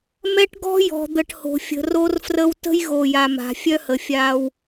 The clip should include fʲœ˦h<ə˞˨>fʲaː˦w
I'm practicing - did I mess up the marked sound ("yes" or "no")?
yes